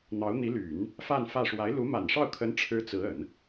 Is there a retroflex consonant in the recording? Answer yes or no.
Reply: yes